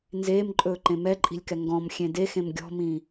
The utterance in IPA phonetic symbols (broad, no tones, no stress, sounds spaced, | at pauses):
n z eː m ǃʼ ɵː ǃ ẽ m ɛ ǃʼ i̤ lʲ k ɛ ŋ ɡ ɔ̃ m xʲ ẽ d e x ẽ m ɡʲ ɔ̤ m ĩː